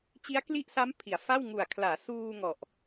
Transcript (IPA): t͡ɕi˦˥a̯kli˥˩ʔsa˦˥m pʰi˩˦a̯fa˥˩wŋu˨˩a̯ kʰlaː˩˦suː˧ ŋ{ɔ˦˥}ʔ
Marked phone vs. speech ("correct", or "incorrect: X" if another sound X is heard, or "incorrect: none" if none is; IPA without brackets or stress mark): incorrect: ɔ˨˩